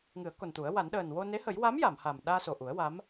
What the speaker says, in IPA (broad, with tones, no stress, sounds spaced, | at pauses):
ŋ ɨ˨˩˦ ə̯ k o˨˩ n t̪ u˨˩˦ ə̯ w a˨˩˦ n ɗ əː˨˩ n w o˧ n e˧˥ h ə˨˩˦ j w a˧˥ m j a˨˩˨ m h a˨˩ m ɗ aː˧ s o˨˩ ʔ u˨˩˦ ə̯ w a˧˥ m